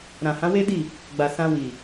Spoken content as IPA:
ɾ ã˨ h ã˨˦ w e˦ d i˦˨ | ɡ͡b a˨ s ã˧ w i˨

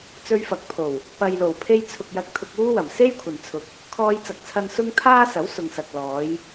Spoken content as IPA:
t͡s ɵ˧ ɥ f ɐ˨˥ k̚ pʰ o˨˩ w | p ɐ˨ j l o˨˩ w pʰ e˧ j t͡sʰ ʊ˨ k̚ j ɐ˧ k̚ t̪ʰ ʊ˧ k̚ uː˥ w ɐ˨˩ m s e˥ j kʷʰ ɐ˨ n t͡sʰ ʊ˧ k̚ | kʰ ɔː˧ j t͡s ɐ˨ k̚ t͡sʰ ɐ˧ n s ʊ˥ ŋ t̪ʰ aː˥ s ɐ˨˥ w s ʊ˨ ŋ s ɐ˨ k̚ l ɔː˨˧ j

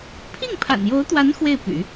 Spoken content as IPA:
pʰ i˥˩ ŋ pʰ a̰˨˩ n j o˧˥ ʊ̯ t̪ w a˧˥ n x w e˥˩ ɪ̯ p y̰˨˩˦

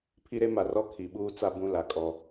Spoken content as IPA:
pʰ i˦ ɾ e˦ m a˨ r ɔ˦ kʰ i˨ ɓ uː˦ t͡s a˦ b ũ˦ l a˨ kʼ ɔ˦

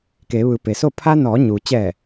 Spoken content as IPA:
k e˩˧ ʋ ɯː˩˧ p e˩ s o˥˨ pʰ a˧ n ɔː˩˧ ɲ u˩ t͡ɕ ɛː˧˩

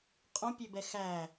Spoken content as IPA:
qʼ ũ pʲ ø b ɛ x æ

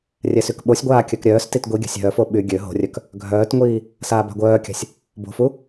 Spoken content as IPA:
rʲ ɛ s y k ɓ o sʲ ɡʷ aː kʲ œ k ɾʲ œː s t i t ɡʷ i ɡʲ a̤ sʲ ɦ œ f o ɓ y ɡʲ ø ɦ o̤ rʲ œ k | ɡʱ œː t ŋʷ iː | s aː b a̤ ɡʷ œː kʲ a̤ sʲ | b o̤ f u

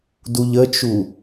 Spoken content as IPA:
d u ʎ ə t͡ʃ u

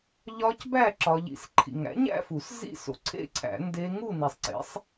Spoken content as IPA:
ʎ ɒ˦˥ c b æ˥˧ ǁ ɒ˦˥ ʎ ḭ˦˥ s ǃʰ ḭ˨ ŋ æ̰˨˥ ɲ æ̰˥˧ f u˨˩˦ s z ḭ˥˧ s o̰˨ ǀʰ ḛ˥˧ ǀʰ æ̰˨˩˦ n d e˦˥ ŋ u˥˧ n i˨ sˤ ǀ ḛ˨˥ sˤ

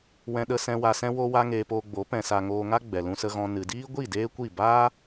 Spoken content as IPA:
w ɛ̃˧ ɗ ə˧ s ɛ̃˧ w a˧ s ɛ̃˦ w o˦ w a˦ ŋ eː˧ p oː˧ ɡ͡b o˨˦ p ɛ̃˨ s a˨ ŋ oː˧ ŋ a˦ ɡ͡b ɛ˨ l ũ˧ s ə˧ ɣ ɔ̃˧ n ɨ˨ d iː˦ ɡʷ i˦˨ d eː˦ kʷ i˦˨ b aː˦

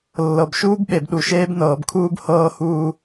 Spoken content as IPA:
lː ɤ˨ b ʃ uː˦ b ɓ e˨ b ɗ u˨ ʃ eː˦ b n ɤː˨ b kʰ uː˦ b h ɤː˦ h uː˦

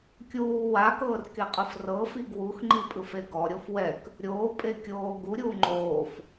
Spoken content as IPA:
kʲ uː w a k ɤː r k e qʼ ɯ f r ɤ f i ɡ w u x ŋ͡ǃ i pʼ ɯ f e ɡ ɔ ɾʲ o f w ɛ k | ɾʲ oː pʼ e kʲ oː ɡ u ɾʲ uː ŋ͡ǃ oː f

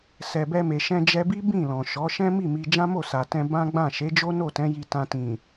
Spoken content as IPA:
s ɛ˨ b ɛ˧ m e˨ ʃ ɛ̃˧ d͡ʒ ɛ˧ b i˦ b ĩ˦˨ l ɔ̃˨ ʃ ɔ˨˦ ʃ ɛ̃˦ m i˦˨ m i˧ d͡ʒ ã˦ m o˦˨ s a˨ t ɛ̃˧ b ã˦ ɡ͡b ã˦˨ ʃ e˨˦ d͡ʒ o˦ n o˦˨ t ɛ̃˨˦ j i˧ t ã˧ t ĩ˨

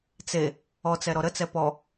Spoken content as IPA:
t͡s e | ɔ t͡s ɛ ɾ ɔ ɾ ə t͡s ɛ p ɔ

